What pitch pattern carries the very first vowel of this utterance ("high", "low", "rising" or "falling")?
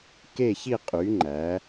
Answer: falling